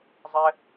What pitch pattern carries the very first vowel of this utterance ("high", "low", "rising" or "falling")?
high